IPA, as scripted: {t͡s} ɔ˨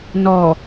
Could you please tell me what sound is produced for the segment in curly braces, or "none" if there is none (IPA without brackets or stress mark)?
n